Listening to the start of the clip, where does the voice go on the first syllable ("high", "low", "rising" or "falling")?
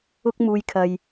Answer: high